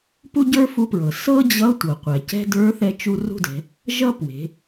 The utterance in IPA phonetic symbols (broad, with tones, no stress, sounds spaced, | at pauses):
p u˥ ɟ ə˞˥ f u˧˥ p ɹ ɤ˩ s ɤ˥ d͡ʑ ʌ˧˥ tʷ ɤ˩ qʷ ɛ˩ c ɛ̤˥ d ə˞˧˥ θ ɛ˧ t͡ʃ u˧ r ṳ˥ d ɛ̤˩˧ | ʒ ʌ˥ p w e̤˩˧